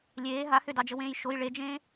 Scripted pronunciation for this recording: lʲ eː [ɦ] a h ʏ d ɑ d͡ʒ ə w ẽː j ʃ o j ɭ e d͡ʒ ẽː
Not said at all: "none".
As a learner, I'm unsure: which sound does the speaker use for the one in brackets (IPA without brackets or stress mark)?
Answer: ɦ